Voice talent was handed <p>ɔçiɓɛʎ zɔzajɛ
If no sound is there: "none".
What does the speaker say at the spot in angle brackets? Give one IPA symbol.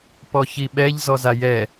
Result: p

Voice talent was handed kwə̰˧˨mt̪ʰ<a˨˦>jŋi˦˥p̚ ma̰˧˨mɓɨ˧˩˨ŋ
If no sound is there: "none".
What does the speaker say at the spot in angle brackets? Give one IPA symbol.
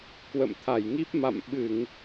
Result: a˧˩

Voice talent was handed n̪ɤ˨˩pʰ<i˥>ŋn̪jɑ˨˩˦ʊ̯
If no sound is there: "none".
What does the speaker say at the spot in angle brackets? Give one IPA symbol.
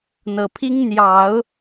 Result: i˥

